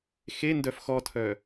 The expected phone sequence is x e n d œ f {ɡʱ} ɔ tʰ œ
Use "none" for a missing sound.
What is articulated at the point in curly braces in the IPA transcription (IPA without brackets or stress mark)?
x